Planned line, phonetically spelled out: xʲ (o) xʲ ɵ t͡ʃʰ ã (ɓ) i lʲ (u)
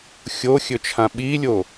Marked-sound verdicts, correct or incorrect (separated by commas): correct, correct, incorrect